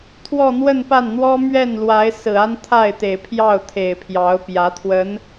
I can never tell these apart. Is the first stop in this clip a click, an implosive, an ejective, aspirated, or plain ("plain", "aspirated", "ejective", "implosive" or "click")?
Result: aspirated